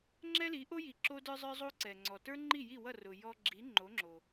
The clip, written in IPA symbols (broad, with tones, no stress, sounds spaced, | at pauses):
ŋ͡ǁ ɛ˥ l i˩˥ ʔ o˥ j i˩ ǁ o˧ d ə˞˧ zˤ ə˞˥ zˤ o˥ ǀ ɛ˩ ŋ͡ǀ ɔ˩ t ə˞˥ ŋ͡ǃ i˥˩ j i˥˩ w ʌ˥˩ r ʊ˩ j ɔ˧ ɡ͡ǁ i˩˥ ŋ͡ǃ o˩˥ ŋ͡ǁ o˩